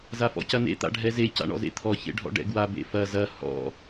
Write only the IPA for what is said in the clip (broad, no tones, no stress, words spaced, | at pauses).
zafɔ̰cɐnḛ t̪a̰ɖʱɛze ca̰ɳɔ̰zḛt̪ʰɔ çḛɖʱɔ̰ɖɛ̰ɡwa bḛfɐ zɐ hɔ̰